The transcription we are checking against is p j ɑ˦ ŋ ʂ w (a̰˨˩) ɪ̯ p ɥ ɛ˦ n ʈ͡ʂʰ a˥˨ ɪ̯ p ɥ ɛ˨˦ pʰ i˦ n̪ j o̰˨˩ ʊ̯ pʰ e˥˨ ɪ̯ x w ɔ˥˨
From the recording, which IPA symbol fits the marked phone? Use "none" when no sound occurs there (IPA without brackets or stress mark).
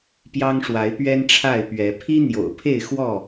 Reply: a˨˦